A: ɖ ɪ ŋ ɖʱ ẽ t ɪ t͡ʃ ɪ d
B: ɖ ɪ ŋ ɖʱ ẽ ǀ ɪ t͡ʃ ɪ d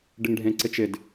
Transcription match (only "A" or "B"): B